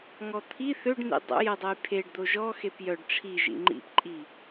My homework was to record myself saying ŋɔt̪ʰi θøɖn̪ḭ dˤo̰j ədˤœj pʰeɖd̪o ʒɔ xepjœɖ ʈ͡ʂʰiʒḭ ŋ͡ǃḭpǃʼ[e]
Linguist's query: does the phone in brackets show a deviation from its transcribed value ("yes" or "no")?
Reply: yes